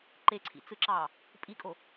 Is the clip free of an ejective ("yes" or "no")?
no